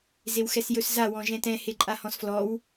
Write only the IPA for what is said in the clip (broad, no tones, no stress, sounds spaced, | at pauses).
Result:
z e w x ɛ s j ɵ s z a w ɔ̃ ʒ ɛ̃ t ɛ̃ h e ǃʼ a h ɔ̃ s f l ɔ w